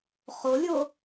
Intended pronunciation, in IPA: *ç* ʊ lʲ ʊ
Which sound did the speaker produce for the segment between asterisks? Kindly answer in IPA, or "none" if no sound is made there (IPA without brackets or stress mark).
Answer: χ